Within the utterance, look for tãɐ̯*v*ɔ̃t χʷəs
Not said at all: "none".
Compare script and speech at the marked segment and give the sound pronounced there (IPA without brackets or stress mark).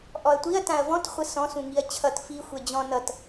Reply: v